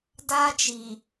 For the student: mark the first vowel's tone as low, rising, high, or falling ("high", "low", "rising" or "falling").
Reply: high